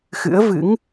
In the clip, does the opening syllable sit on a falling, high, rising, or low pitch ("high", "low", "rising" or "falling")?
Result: rising